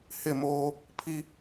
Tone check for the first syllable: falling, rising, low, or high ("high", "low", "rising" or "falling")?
falling